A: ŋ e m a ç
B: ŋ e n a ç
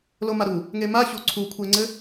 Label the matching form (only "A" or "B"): A